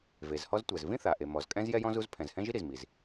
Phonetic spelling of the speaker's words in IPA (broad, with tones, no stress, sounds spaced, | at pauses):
v e˩ z h ɔ˥ z tʷ ɛ˩ z v ĩ˥ θ a˩ ʔ e˩ m ɔ˩ z kʼ ɛ̃˥ z j ɛ˥ j ɔ̃˥ z u˥ z pʰ ɛ̃˩ z h ɛ̃˥ ʒ i˥ ɾ i˩ z m i˩ z